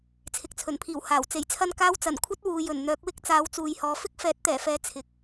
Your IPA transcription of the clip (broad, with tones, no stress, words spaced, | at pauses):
t͡sʰɪ˨k̚t͡sʰɵ˨˩npʰiː˨˩w haː˨˩w t͡se˨˩jt͡sʰɐ˧n kaː˧wt͡sɐ˨˩n kʷʰɐ˧t̚ wuː˨jɵ˨˩n n̪œː˨˥k̚wɪ˥k̚ t͡saː˨˥wt͡suː˨jhɔː˨ fɪ˥k̚fɛː˨˥t̚t̪ɛː˨˩fɛː˨˧ t͡sʰɪ˨k̚